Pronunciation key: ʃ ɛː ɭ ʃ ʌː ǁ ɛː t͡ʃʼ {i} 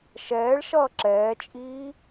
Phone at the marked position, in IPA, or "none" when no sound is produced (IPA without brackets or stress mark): iː